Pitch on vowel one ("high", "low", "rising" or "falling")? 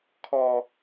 low